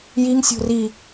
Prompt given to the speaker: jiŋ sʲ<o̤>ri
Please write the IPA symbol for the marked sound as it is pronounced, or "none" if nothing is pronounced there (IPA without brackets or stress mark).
o̤